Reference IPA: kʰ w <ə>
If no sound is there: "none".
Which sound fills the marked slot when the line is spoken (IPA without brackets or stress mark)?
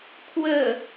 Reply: ə